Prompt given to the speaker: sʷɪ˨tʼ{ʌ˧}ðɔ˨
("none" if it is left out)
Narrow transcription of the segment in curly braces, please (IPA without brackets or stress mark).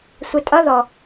ʌ˧